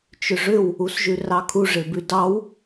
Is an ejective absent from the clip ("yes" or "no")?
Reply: yes